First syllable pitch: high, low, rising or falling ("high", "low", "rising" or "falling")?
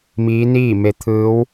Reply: rising